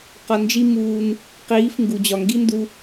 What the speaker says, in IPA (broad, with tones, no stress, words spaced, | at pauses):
qɒ˧ nd͡ʒi˦ muː˧n | qiː˨˦f ŋɡu˨d͡ʑɒ˨ŋɡi˦ndu˧